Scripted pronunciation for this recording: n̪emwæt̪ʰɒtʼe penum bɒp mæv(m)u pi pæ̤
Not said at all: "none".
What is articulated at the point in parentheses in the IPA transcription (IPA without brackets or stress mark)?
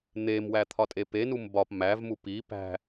m